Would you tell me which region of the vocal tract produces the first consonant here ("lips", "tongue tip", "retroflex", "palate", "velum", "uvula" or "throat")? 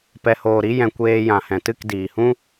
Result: lips